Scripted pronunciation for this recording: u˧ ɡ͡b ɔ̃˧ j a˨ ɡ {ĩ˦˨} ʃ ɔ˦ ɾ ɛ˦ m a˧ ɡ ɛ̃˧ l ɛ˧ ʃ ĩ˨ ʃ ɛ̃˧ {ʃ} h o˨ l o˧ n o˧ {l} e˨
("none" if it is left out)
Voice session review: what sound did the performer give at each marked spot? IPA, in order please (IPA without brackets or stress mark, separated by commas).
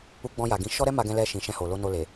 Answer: ĩ˨˦, none, l